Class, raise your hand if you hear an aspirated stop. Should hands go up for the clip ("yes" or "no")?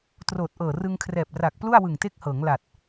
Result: yes